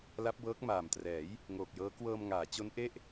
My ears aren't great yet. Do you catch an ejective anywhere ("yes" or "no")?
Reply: no